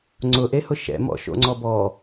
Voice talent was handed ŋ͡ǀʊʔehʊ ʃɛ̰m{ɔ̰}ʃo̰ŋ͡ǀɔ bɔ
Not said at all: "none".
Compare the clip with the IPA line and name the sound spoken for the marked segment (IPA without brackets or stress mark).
ɔ̰